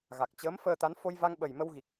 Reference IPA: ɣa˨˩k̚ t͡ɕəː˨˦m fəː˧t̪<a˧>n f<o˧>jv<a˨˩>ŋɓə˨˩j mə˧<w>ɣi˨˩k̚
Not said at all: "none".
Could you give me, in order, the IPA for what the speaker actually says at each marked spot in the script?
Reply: a˨˦, o˧, a˧, w

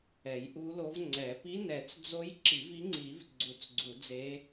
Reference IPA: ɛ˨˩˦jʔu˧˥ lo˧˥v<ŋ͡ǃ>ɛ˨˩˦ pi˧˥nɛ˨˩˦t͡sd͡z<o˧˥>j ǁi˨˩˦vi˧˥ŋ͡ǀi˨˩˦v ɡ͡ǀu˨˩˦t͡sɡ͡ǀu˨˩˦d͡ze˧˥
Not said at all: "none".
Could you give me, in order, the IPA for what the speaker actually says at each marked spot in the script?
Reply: ŋ͡ǀ, o˧˥

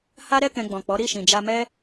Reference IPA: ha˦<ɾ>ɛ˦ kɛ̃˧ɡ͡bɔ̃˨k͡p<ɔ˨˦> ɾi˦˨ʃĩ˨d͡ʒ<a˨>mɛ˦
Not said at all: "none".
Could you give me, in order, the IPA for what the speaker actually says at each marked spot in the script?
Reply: ɾ, ɔ˨˦, a˧

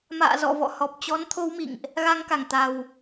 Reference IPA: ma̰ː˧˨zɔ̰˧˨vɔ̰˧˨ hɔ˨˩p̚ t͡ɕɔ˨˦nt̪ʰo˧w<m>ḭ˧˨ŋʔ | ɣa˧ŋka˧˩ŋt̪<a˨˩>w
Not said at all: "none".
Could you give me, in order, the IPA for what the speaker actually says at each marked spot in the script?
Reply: m, a˨˩

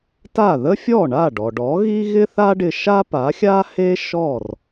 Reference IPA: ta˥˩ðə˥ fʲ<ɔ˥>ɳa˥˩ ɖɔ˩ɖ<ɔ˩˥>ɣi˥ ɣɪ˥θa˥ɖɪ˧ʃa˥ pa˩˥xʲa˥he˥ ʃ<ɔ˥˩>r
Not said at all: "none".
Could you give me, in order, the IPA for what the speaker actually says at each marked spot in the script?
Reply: ɔ˥˩, ɔ˩˥, ɔ˥˩

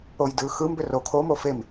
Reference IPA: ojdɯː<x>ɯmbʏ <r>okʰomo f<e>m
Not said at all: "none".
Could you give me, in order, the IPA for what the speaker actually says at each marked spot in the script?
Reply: x, r, e

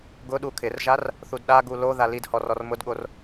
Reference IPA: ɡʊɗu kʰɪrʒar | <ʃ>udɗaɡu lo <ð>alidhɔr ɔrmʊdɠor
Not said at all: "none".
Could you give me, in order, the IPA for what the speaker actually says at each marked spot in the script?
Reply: θ, ð

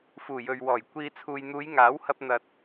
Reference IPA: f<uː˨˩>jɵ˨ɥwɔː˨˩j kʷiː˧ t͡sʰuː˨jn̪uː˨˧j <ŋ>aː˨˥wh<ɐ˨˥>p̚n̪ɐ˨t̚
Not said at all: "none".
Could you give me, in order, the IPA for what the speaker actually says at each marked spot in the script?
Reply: uː˨˩, ŋ, ɐ˧

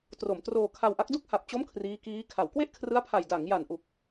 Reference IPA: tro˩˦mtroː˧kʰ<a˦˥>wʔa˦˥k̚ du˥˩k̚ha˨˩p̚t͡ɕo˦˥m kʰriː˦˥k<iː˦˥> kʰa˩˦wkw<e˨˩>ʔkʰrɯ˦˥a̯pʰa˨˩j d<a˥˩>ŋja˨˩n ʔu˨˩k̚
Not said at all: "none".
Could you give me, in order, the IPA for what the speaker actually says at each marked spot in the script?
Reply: a˧, iː˦˥, e˥˩, a˩˦

